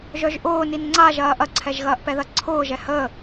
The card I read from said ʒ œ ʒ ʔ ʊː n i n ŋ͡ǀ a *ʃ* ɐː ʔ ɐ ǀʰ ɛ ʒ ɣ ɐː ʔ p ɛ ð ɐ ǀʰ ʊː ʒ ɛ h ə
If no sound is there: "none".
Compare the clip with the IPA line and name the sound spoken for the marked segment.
ʒ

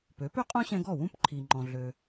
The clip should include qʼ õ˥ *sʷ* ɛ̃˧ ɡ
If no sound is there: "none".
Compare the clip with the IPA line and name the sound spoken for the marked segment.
ɕ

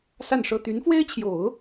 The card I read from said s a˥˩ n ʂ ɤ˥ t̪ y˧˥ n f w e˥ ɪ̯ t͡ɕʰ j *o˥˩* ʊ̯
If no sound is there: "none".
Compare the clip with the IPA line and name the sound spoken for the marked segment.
o˨˩˦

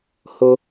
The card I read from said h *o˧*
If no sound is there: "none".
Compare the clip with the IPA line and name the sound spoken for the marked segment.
o˧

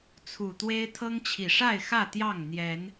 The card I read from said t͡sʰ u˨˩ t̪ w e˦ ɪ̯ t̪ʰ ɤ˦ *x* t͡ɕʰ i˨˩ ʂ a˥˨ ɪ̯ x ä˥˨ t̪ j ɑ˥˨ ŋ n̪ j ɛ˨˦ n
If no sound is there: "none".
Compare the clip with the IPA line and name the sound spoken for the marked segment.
ŋ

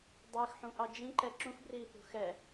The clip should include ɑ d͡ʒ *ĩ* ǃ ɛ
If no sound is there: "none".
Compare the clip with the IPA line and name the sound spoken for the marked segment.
ĩ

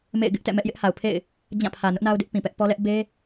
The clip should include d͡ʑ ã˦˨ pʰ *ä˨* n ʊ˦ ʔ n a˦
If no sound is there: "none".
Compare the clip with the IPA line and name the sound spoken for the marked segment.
ä˨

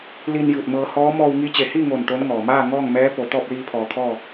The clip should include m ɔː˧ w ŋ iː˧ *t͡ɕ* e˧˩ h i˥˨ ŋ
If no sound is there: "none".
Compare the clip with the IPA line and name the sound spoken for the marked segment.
t͡ɕ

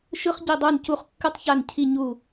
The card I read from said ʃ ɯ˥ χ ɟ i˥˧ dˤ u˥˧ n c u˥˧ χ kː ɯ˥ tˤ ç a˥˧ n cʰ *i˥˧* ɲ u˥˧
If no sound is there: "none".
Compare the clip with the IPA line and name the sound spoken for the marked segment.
i˥˧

